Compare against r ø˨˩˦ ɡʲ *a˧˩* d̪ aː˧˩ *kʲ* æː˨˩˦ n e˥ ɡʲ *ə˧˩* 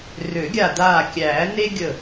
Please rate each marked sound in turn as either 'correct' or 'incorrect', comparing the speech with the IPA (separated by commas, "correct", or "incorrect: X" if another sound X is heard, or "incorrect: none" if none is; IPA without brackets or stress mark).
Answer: correct, correct, correct